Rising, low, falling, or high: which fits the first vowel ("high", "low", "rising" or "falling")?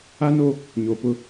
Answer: high